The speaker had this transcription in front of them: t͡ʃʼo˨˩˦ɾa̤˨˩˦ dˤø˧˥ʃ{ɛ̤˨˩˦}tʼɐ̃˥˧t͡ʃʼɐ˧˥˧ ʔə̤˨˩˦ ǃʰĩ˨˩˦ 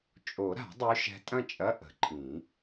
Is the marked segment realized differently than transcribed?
yes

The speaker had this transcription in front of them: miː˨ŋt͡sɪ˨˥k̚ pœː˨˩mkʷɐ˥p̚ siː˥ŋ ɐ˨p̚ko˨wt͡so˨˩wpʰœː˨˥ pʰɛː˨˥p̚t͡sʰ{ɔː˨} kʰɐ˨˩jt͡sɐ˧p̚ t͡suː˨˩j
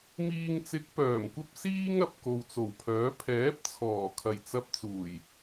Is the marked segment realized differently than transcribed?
yes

